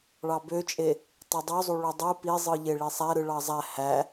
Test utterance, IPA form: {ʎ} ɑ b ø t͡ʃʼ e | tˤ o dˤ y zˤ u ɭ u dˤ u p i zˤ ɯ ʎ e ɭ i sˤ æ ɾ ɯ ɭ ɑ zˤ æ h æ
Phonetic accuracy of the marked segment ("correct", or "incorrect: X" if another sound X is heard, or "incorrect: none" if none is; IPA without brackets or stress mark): incorrect: ɭ